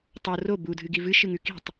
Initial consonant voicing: voiceless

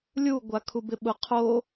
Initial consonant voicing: voiced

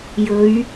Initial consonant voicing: voiced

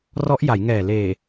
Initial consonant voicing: voiced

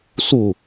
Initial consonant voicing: voiceless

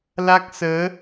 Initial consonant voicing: voiced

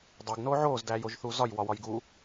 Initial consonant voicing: voiced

